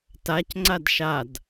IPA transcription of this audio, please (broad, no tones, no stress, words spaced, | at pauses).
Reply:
tacŋ͡ǀad ʃad